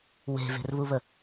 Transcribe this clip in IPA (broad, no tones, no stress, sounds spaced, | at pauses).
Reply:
w e̤ v e̤ r β u β ə